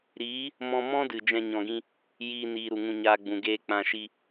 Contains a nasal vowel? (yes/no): yes